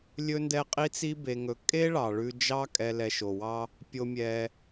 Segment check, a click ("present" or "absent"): absent